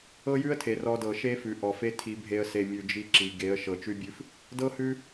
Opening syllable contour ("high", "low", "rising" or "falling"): high